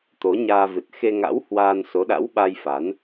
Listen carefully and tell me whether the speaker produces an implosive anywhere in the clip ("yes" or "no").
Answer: yes